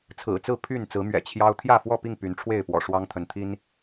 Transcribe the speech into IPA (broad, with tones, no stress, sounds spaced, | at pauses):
t͡sʰ ɹ̩˨˩ t͡s ɹ̩˥˨ pʰ y˥˨ n t͡s ɹ̩˨˦ m ɥ ɛ̰˨˩ t͡ɕʰ j ɑ˦ ʊ̯ t̪ʰ j ä˥˨ f w ɔ˥˨ p i˥˨ ŋ p y˨˦ n ʈ͡ʂʰ w e˥˨ ɪ̯ p w ɔ̰˨˩ ʂ w ɑ˦ ŋ t̪ʰ ə˨˦ n t̪ʰ i˦ n